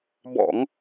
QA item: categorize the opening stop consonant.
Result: plain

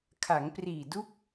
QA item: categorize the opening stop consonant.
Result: aspirated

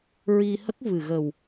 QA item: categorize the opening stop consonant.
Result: plain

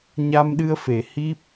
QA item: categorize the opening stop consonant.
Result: implosive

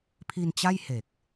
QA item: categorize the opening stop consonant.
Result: aspirated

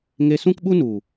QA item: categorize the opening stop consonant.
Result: plain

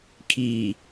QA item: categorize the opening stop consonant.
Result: aspirated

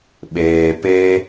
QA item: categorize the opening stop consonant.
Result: implosive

